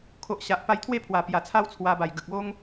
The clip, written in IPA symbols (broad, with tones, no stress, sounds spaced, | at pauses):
kʰ o˨ ʔ ɕ a˨ ʔ p a˧ j t̪ʰ w e˥˧ pʰ w a˨˩ p j a˨˩ t͡sʰ a˦ w t͡sʰ w a˧ b a˨˩ j ɡ ə˨ k̚ o˦ ŋ